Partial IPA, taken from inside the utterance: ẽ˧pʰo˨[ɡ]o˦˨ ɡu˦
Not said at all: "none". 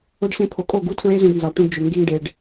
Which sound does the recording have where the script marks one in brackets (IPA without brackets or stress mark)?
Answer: kʼ